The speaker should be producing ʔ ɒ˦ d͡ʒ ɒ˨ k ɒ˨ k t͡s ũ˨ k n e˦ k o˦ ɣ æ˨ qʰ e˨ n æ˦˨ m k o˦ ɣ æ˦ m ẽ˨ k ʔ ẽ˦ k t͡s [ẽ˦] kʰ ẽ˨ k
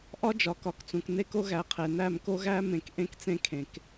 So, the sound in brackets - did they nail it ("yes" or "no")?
yes